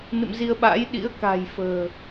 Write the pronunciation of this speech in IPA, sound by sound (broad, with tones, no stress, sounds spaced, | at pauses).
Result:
n ɨ̰˧˨ m z i˧ ə̯ ɓ a̰˧˥ j ɗ ḭ˧˥ ə̯ k a̤˨˩ j f ə̤ː˨˩